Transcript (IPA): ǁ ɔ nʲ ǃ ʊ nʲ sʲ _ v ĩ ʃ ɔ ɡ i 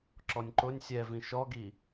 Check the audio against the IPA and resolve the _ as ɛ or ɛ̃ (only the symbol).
ɛ